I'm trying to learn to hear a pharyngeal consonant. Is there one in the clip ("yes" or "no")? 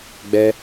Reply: no